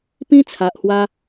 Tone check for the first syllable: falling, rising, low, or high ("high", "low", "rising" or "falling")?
high